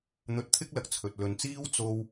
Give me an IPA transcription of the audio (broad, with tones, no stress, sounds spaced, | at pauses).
n̪ ɵ˧ t̚ t̪ʰ ɪ˥ k̚ l ɐ˨ k̚ t͡sʰ ɵ˨ t̚ l ɵ˨ n t͡s iː˥ w t͡s o˧ w